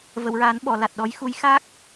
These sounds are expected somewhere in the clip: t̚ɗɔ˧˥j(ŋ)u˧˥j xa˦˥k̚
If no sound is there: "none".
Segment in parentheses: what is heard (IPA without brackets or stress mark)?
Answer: x